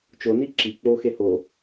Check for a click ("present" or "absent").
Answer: present